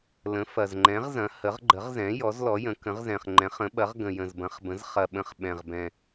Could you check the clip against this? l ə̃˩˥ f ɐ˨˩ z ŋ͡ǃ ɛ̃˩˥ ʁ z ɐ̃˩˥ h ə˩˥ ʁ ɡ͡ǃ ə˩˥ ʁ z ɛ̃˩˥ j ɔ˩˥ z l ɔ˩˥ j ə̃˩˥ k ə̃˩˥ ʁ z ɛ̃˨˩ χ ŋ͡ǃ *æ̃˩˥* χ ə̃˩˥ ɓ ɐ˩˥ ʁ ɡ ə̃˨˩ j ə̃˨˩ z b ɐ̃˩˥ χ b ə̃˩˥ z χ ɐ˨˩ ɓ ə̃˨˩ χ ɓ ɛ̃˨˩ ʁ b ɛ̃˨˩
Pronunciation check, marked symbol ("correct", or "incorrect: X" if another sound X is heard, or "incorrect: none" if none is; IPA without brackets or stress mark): incorrect: ɛ̃˩˥